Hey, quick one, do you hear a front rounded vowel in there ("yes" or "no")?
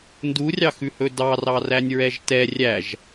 no